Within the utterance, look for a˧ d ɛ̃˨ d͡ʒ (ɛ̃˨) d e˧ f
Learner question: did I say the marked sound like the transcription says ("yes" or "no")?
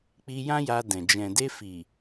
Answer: yes